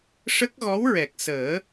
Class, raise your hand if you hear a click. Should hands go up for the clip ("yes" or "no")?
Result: no